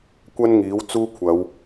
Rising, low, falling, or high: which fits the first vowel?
high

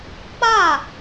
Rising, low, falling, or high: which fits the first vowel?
falling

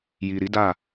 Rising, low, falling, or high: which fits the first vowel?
low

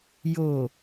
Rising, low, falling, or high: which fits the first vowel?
low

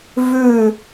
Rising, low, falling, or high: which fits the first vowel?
falling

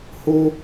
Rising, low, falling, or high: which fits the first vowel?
high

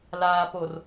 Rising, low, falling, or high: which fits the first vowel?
low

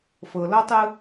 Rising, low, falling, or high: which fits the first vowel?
low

